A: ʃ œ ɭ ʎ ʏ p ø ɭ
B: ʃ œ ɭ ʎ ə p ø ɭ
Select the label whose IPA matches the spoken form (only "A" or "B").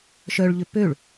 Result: A